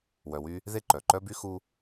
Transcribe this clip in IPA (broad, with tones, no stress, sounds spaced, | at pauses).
w œ˧ w y˥ | ð e˥ ǃ œ˩ ǃ œ˥ b y˥ x u˥